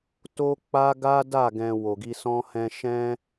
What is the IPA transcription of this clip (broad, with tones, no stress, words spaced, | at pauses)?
to˦k͡pa˦ɡa˦da˦˨ ɡɛ̃˧ wo˨ɡi˧sɔ̃˦ hɛ̃˦ ʃɛ̃˦